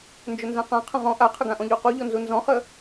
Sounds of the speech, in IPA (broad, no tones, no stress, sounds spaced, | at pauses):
n d͡ʒ ɵ n z ã q ã qʰ ə̃ ʁ ɔ̃ ʔ a qʰ ə ɡ ã ʔ ɔ̃ ʎ u q u ʎ ɔ n z u n z ɔ̃ χ ə